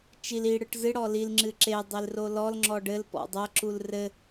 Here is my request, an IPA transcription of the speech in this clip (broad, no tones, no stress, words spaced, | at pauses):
t͡ʃil i ɽɯʈzɨ ɽɔlil ŋ͡ǁɨǁe dˤelrolɔl ŋ͡ǁɔɖɘl pɔ̰dˤɐ ǁulrɘ